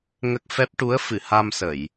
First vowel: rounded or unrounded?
unrounded